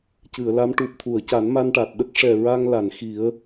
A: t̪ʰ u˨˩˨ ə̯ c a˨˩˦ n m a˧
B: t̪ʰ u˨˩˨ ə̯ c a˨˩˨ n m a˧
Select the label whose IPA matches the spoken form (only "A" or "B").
A